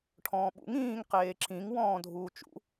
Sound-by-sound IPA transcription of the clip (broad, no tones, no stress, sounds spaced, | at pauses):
ʈʰ ɔ̃ː ɓ ṵ ŋ ĩː ŋ q eː ǁ ĩ ŋ w ɔ̃ː dʱ uː t͡ʃ ṵ